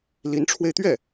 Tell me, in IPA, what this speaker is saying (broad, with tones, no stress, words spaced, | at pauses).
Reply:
li˧˥nʈ͡ʂʰwe˧ɪ̯t̪ɥɛ˥˩